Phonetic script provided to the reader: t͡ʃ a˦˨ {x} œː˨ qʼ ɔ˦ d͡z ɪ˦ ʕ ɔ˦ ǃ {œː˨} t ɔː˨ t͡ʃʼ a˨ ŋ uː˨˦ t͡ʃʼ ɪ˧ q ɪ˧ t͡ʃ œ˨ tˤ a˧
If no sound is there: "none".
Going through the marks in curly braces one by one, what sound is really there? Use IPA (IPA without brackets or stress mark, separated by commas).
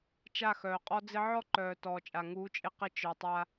x, œː˨